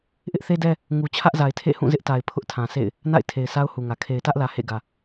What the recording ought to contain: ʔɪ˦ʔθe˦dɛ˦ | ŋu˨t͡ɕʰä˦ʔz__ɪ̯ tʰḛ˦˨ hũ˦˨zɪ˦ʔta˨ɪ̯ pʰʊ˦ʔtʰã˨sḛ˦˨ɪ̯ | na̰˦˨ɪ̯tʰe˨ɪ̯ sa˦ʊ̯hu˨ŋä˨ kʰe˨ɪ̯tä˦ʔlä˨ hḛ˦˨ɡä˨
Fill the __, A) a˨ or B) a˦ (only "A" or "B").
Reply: A